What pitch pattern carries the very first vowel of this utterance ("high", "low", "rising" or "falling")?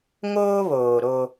high